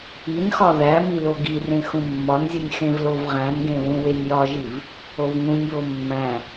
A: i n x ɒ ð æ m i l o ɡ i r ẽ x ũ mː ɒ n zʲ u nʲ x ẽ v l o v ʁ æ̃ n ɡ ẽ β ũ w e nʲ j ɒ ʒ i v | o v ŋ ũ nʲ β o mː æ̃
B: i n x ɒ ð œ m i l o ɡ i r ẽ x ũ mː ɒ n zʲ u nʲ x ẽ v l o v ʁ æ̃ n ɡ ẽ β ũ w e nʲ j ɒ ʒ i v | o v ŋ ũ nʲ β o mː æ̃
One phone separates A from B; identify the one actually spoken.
A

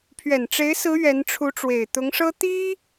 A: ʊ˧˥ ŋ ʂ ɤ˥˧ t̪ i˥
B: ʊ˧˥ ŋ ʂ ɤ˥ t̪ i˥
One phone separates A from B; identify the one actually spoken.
B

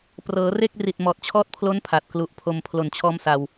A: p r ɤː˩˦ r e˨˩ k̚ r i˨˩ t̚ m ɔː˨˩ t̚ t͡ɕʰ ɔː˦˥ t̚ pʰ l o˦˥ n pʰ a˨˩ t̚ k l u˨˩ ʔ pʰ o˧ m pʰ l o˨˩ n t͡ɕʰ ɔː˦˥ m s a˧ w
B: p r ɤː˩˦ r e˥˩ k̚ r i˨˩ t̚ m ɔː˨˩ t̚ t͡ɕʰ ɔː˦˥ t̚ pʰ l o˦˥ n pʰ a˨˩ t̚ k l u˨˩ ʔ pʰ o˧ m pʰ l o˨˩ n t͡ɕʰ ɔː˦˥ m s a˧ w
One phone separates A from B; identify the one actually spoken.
B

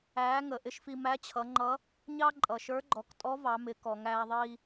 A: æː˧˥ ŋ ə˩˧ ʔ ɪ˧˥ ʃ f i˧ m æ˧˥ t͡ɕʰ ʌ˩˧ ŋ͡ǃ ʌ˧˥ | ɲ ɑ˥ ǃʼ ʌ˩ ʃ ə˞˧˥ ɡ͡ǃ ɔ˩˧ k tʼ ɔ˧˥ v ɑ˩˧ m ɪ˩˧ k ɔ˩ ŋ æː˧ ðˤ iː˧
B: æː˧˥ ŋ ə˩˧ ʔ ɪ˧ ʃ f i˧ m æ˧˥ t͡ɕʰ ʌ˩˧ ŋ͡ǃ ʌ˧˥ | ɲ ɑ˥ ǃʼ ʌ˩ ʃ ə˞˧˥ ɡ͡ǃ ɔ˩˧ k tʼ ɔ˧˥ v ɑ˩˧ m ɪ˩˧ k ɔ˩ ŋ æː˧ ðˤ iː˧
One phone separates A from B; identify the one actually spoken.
B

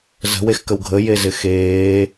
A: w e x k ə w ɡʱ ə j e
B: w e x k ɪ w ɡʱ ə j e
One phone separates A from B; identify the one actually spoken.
A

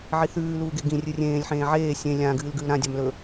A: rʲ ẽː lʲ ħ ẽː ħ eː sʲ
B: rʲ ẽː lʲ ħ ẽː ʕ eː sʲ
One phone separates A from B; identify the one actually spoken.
B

